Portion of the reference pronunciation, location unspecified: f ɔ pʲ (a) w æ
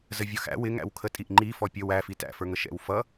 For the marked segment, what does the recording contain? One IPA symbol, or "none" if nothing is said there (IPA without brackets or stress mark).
ə